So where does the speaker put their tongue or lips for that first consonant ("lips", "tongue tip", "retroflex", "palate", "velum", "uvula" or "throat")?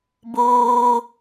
lips